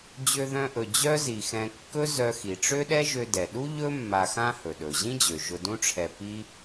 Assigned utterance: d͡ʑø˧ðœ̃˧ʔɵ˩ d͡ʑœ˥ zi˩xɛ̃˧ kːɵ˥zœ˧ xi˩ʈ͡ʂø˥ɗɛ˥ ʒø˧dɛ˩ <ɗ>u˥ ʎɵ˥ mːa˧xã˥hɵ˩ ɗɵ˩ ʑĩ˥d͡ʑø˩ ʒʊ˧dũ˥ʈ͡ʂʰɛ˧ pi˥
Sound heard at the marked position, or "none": ɗ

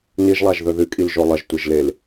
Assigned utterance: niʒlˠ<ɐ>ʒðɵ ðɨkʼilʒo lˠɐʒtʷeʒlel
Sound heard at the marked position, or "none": a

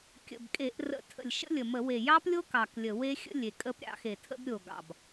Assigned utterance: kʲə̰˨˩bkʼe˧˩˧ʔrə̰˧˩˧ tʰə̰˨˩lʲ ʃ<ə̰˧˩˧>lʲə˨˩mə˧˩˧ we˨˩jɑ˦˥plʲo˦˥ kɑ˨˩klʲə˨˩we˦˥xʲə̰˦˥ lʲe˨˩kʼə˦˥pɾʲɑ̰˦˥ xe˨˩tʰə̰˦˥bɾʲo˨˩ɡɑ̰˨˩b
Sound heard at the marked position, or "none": ə̰˦˥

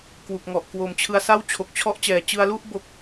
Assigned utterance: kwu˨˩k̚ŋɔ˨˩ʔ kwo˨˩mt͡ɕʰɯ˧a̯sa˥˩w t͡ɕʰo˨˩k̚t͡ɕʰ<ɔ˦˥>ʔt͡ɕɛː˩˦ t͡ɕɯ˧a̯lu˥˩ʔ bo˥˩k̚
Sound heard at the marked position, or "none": ɔ˦˥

